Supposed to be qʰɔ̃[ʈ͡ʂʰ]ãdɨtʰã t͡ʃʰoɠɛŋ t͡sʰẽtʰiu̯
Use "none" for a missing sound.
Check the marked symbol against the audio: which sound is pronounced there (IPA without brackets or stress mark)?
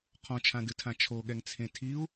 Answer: t͡ʃʰ